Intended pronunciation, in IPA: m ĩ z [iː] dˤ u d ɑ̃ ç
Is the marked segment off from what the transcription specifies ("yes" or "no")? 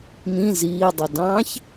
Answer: no